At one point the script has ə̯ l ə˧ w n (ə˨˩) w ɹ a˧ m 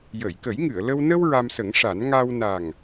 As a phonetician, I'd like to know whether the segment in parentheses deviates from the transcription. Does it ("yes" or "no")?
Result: yes